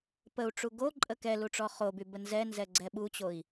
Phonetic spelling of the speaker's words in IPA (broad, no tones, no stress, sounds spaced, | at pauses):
p ə u̯ ʈ͡ʂ u ɡ o ǃʼ ə k ɛ l u ʈ͡ʂ ɔ χ o b y b ə n z ɛ n z ɛ ɡ͡ǀ ɛ ɓ u t͡ɕ o i̯